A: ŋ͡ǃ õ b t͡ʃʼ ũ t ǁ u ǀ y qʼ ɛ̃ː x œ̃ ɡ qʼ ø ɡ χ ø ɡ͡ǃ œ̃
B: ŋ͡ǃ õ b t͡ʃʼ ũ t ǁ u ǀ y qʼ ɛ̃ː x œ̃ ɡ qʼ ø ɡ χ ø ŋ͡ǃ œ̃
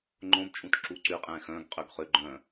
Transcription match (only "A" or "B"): A